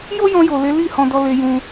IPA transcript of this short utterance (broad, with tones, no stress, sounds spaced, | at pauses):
j o˦ j ɔ̃˧ j o˨ l e˨˦ l i˦˨ h ɔ̃˧ d ɔ˧ l e˧ j ũ˧